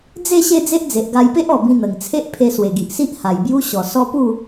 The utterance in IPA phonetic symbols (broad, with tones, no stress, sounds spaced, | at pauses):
d͡z e˥˧ ɕ e˥˧ d͡z e˦ ʔ d͡z e˨ ʔ ɡ a˧ j p e˦ ʔ ɔ˨˩ b ĩ˧ n̪ ə˨˩ ŋ t͡sʰ e˦ ʔ pʰ e˧ s w e˨˩ ɡ i˨ ʔ s i˦ ʔ h a˨˩ j b j u˦ ɕ ɔ˨˩ s ɔ˧ p u˥˧